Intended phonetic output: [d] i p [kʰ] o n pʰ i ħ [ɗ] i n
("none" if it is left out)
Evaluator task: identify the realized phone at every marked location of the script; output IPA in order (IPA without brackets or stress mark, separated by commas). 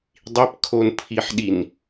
dˤ, kʰ, ɗ